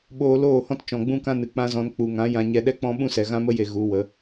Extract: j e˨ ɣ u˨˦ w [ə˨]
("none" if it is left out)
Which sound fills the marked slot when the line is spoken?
ə˨˦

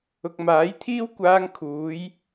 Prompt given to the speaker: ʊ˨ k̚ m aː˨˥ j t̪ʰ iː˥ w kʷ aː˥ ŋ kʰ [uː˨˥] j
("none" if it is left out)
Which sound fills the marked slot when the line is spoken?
uː˨˥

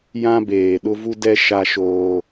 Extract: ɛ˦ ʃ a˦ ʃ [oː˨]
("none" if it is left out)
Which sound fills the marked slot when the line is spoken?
oː˦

